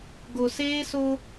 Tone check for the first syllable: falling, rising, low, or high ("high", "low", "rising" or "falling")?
low